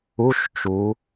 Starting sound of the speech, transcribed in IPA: u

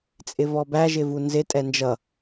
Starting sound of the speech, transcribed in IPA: t͡sʼ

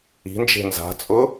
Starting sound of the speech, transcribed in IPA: i̤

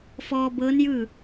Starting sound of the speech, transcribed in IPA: f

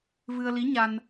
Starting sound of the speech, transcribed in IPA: v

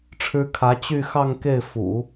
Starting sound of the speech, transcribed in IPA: ʈ͡ʂʰ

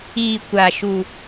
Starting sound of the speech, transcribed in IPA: iː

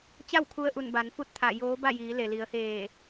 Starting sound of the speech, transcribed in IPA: t͡ɕ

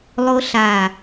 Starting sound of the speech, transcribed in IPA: lˠ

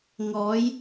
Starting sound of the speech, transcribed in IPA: ŋ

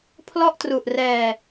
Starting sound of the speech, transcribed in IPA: pʰ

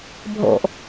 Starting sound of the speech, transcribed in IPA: bʱ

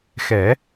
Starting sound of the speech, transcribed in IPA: x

